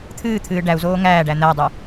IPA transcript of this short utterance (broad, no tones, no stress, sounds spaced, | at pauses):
t̪ʰ ɨː t̪ʰ ɨː ɖ æ u̯ z oː ŋ æː ɖ æ n̪ æ dˤ u